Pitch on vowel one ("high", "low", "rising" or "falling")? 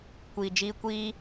low